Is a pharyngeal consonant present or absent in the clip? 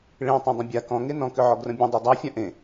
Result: present